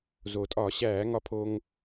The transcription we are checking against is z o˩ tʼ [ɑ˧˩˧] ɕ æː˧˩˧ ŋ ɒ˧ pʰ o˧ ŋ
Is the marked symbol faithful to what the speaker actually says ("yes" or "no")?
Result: no